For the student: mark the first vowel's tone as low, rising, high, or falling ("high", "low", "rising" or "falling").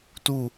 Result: falling